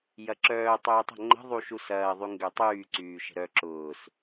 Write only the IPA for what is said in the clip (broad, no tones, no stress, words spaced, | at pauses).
jɐǁœː tˤyːtˤə̤ ŋ͡ǃə̤ ðˤuʃusɐː ðˤyŋɡøtˤyː ǀyːʃə̤ɾœ ǁʊːs